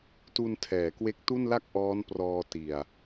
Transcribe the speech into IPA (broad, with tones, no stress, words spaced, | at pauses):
tu˧n tʰɛː˩˦kwe˦˥k̚tu˥˩nla˥˩k̚ ʔɔː˦˥nprɔː˧ ti˨˩a̯